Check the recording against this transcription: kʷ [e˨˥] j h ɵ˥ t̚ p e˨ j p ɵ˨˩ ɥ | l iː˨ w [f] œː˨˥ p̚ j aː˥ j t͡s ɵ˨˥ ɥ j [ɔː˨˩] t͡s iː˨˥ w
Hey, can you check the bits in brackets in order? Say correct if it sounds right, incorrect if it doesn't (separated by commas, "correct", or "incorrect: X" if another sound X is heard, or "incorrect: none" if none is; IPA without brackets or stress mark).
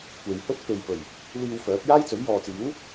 incorrect: e˨, correct, incorrect: ɔː˨